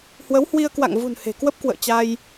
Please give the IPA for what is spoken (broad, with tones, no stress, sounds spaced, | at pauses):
h w ə˨˦ w h w i˧ ə̯ k w a̰˧˨ ŋ v ṳ˨˩ n h e̤˨˩ k w ə˦˥ p̚ k w ə̰ː˧˨ t͡ɕ a˧ j